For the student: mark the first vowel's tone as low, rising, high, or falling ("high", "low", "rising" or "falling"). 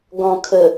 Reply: low